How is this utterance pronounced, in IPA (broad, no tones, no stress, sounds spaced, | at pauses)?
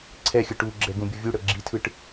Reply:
ǀʰ ɛ xʲ ɯ ʈ u ɡ͡ǁ ɛ ɡ ũ bʲ u vʲ u ɽ ɤ ɡ͡ǁ i tʰ ɯ ʈ